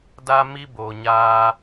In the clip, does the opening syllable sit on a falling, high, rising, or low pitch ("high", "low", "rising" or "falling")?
high